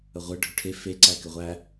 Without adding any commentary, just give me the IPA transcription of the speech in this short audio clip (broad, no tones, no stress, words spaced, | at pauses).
əʁʷɘ ɖʱʏʈʰe fe ǀækɘʁʷæ